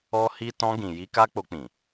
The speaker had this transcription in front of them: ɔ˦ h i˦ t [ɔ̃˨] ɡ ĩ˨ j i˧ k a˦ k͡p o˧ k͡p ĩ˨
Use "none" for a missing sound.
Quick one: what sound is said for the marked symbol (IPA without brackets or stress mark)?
ɔ̃˧